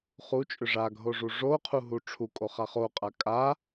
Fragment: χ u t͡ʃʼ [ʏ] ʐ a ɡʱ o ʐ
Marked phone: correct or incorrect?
correct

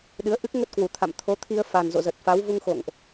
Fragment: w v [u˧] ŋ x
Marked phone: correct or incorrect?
correct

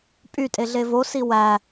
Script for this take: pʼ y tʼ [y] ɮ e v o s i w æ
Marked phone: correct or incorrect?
incorrect: e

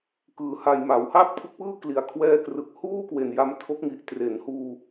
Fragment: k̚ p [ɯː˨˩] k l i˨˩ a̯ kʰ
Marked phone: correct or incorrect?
incorrect: ɯː˥˩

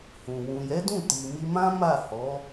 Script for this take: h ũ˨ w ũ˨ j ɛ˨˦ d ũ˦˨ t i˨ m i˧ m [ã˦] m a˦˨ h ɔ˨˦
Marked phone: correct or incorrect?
correct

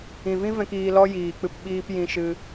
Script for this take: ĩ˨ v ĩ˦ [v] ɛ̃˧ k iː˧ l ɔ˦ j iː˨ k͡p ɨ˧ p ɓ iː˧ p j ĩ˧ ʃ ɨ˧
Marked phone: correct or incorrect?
correct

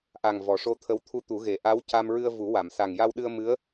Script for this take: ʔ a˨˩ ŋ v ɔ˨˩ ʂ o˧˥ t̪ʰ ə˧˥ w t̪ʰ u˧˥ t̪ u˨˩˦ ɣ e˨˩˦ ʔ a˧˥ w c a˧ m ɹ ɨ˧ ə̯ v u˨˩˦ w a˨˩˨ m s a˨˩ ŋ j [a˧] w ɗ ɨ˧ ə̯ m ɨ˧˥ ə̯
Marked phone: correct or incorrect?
correct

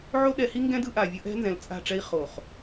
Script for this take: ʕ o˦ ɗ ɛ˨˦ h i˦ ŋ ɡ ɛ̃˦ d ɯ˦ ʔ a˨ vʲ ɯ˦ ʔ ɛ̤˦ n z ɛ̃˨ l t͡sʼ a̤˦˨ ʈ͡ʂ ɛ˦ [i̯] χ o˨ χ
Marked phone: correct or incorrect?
correct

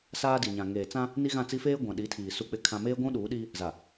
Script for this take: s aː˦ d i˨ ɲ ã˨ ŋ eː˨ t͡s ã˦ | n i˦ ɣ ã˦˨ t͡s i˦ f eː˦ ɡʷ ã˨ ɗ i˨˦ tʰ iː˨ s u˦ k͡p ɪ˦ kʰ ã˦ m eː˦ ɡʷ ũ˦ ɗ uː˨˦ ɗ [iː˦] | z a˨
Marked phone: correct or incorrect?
correct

